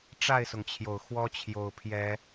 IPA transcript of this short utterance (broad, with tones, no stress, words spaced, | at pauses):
ʈ͡ʂa˥˨ɪ̯sʊ˩ŋt͡ɕʰjo˩ʊ̯ xwɔ˦t͡ɕʰjo˨˩ʊ̯pʰjɛ˨˦